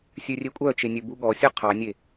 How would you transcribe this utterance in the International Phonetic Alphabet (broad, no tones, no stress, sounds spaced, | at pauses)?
sʲ ø rʲ e kʷʼ œ t͡ʃ e nʲ ø b u ɠ ɔ sʲ œ qʰ ɑ nʲ e